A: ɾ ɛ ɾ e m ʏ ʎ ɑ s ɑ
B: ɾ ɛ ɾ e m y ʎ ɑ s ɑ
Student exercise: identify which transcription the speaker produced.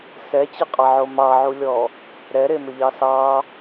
A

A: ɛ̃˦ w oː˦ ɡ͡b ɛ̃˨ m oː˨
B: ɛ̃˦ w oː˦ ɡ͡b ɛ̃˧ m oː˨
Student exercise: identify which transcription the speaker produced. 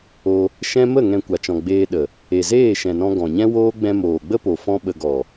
B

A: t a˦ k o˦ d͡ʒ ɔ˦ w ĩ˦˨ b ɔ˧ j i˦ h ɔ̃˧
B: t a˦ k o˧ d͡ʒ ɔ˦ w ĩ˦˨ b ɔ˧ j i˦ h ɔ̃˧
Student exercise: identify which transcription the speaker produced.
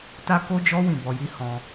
A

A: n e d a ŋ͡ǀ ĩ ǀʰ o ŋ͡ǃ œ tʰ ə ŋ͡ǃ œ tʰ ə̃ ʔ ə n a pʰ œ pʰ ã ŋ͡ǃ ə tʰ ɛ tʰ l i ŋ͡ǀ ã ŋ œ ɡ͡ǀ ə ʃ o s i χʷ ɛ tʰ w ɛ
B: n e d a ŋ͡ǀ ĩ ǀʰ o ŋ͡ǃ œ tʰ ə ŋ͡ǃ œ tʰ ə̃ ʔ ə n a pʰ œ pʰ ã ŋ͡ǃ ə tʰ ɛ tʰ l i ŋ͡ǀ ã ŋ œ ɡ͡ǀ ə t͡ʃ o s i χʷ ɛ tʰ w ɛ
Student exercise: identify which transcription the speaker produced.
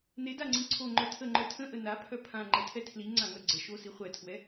A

